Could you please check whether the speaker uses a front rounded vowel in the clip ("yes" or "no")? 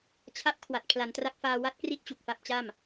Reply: no